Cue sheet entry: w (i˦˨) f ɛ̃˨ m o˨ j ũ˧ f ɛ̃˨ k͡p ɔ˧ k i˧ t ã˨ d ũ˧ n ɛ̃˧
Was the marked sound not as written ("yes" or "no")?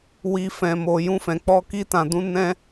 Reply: yes